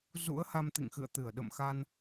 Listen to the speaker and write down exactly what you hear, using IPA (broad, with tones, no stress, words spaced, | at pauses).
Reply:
zṵ˧˥ə̯ ha˧mt̪ḭ˧˨ŋxɨ̰˧˨ə̯ t̪ɨ˧˩ə̯ ɗə̰˧˨mxa˧n